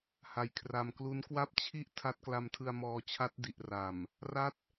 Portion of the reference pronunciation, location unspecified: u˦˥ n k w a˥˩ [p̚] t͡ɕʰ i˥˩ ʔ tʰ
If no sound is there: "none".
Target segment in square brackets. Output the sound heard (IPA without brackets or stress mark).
p̚